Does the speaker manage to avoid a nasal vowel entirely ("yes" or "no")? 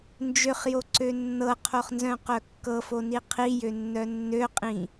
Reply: no